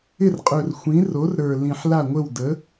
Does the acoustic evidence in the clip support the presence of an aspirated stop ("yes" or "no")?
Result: no